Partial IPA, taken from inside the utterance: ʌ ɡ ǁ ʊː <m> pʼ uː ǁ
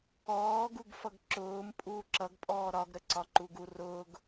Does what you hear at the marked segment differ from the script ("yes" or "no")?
no